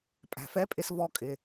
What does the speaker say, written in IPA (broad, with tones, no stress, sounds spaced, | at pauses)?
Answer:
pʼ æ̤˩ f ɛ˧˥ pʼ ɪ˧ s v ɔ˧ kʼ ɪ˩